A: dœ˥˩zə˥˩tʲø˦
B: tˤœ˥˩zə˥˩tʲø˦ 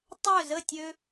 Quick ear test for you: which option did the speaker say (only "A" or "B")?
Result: B